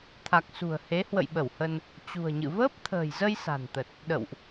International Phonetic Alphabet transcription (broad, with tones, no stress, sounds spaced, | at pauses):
t̪ʰ a˨˩ k̚ s ṳ˨˩ ə̯ h e˨˦ h w ə̰˧˨ j ɓ ə˧˩ w h ə˧ n | t͡ɕ ṳ˨˩ ə̯ ɲ ɨ̰˧˨ v əː˦˥ p̚ t̪ʰ ə̤ː˨˩ j z ə˧ j s a̤˨˩ n t̪ ə˨˩ t̚ | ɗ ə̰˧˨ w ʔ